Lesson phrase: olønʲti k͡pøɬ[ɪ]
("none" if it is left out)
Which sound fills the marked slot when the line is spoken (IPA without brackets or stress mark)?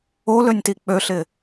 ɪ